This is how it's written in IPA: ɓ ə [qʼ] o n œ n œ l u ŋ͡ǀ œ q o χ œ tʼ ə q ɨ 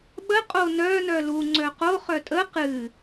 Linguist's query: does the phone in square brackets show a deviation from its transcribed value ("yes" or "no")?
no